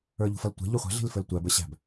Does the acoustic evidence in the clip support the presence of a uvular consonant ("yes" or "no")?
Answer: yes